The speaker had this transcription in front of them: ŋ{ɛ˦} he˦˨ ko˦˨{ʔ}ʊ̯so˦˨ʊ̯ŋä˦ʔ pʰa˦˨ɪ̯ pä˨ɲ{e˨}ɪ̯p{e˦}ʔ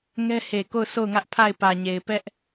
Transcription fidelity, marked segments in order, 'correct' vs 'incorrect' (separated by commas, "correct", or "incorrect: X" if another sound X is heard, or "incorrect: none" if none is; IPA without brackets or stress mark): correct, incorrect: none, correct, incorrect: ɛ˦